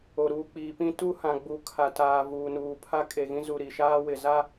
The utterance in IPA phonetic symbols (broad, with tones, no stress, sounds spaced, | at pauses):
o˨ ɾ uː˨ k͡p iː˨ p ĩ˦ t u˦ h ã˨ ɡ͡b u˨ kʰ a˨ t aː˨ v uː˨ n uː˨ pʰ a˦ kʼ e˨ ɣ ĩ˦ z u˨ ɾ i˨ ʃ aː˦ w ɪ˨ z a˦